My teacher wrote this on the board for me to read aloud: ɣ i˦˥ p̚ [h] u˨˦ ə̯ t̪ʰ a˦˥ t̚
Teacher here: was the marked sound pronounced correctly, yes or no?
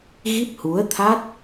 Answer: yes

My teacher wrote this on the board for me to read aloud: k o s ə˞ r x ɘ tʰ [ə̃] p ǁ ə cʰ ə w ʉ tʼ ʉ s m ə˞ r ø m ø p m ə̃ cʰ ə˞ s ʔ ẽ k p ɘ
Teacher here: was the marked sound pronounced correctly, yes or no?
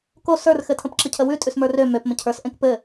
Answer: yes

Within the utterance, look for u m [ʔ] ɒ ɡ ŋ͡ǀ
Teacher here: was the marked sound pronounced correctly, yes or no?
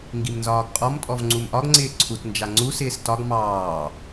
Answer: yes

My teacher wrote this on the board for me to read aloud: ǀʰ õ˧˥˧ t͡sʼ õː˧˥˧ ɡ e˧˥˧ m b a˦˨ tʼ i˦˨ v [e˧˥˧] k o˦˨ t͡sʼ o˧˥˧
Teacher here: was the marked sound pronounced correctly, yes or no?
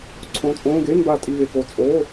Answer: no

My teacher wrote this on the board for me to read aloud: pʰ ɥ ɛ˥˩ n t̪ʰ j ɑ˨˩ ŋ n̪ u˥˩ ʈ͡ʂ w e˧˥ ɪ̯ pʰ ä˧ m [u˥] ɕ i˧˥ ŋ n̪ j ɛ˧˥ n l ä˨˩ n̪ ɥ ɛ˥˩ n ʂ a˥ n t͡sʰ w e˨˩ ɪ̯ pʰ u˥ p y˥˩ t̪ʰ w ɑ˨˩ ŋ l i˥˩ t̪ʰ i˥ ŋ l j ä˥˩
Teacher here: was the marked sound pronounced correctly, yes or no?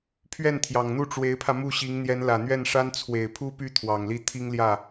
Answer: no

